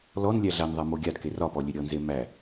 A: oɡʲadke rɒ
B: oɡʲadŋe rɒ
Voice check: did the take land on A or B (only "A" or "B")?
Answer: A